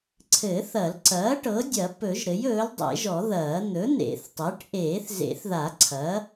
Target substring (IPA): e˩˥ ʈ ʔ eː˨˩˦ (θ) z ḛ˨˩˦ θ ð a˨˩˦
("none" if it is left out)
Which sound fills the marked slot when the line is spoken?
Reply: θ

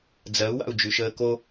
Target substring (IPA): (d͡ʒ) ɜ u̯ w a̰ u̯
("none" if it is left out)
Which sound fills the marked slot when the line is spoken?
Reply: d͡z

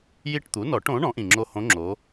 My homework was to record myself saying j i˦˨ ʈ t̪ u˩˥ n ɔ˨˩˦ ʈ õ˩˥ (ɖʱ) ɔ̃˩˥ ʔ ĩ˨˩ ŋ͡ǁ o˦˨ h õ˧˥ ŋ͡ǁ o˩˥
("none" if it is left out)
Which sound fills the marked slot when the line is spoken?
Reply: ɳ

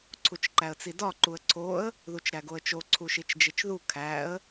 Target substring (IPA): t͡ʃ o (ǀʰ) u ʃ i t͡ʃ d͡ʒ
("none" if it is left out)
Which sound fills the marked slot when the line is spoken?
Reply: ǀʰ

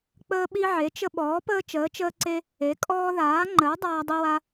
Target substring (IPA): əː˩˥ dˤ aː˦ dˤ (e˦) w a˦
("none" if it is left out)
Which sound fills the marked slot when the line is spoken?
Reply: i˦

